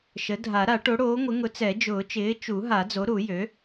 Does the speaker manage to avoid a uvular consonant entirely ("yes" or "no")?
yes